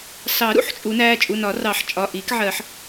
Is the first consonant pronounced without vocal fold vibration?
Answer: yes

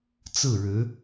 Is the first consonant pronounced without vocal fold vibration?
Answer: yes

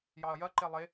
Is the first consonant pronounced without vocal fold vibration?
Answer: no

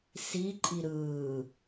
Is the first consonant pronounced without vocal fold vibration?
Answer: yes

